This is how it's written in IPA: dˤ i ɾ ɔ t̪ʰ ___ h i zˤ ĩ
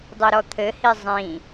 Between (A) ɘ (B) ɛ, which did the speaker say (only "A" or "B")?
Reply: A